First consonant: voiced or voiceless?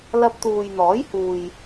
voiced